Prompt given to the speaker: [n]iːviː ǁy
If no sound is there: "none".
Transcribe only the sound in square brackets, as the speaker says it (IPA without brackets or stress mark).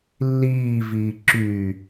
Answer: lː